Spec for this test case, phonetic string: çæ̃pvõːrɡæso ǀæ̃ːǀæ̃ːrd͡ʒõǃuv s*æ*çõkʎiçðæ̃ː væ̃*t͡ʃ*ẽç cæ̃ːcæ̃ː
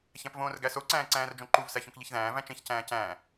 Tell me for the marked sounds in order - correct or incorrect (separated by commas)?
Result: correct, correct